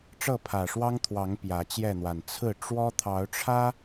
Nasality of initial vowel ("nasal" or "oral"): oral